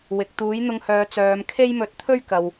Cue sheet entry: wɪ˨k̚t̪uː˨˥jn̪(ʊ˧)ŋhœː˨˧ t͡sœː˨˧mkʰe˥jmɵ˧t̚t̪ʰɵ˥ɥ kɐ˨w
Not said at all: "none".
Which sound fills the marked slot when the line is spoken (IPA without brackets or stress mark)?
ʊ˧